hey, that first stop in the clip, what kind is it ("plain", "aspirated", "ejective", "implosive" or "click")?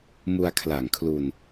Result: aspirated